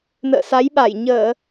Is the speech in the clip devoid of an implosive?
no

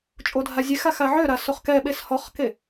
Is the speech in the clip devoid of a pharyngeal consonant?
no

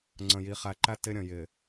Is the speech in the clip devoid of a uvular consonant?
no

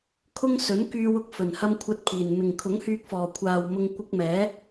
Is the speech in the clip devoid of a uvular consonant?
yes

